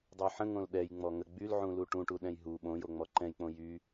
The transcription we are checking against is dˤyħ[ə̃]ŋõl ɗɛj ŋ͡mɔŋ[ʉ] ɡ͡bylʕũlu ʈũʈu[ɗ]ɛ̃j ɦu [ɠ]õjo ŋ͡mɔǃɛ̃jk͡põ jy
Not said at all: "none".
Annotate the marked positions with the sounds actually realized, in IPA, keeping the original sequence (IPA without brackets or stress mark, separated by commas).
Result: ə̃, ə, ɗ, ɓ